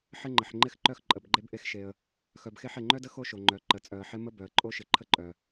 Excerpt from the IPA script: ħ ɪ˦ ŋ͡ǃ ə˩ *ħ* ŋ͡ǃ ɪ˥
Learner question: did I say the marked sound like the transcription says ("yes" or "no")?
yes